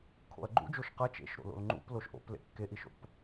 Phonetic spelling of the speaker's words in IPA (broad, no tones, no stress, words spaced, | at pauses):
kʰo̰ɐ̯ɡ͡ǃṵd͡ʒoʃ qɐ t͡ʃḛʃɾo̰lo̰l ŋ͡ǃṵp loʃʔo̰p lḛkːeʔiʃo̰p